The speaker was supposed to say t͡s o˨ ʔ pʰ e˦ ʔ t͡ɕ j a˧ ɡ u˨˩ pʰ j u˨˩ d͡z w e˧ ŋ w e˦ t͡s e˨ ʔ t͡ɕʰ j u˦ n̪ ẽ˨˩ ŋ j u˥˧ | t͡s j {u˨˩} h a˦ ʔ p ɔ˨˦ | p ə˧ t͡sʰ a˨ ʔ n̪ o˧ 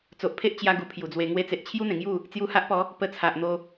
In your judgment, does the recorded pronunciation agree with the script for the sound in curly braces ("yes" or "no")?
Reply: no